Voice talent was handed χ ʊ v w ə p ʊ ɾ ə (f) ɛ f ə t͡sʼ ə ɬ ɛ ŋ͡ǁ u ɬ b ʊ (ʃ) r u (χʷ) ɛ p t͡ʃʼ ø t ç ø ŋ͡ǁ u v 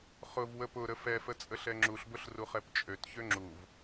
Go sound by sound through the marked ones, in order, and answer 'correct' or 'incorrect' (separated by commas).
correct, incorrect, incorrect